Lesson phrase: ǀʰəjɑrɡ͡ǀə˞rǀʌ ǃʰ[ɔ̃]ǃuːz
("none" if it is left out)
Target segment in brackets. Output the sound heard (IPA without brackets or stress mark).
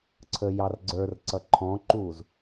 ɔ̃